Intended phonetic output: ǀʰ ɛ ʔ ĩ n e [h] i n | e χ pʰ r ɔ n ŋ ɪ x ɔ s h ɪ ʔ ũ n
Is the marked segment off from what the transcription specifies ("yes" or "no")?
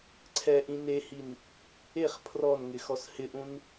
no